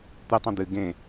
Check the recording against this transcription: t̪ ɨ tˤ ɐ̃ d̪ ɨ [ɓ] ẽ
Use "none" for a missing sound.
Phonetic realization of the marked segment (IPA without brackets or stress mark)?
ɡ